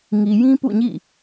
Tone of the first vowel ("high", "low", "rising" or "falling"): low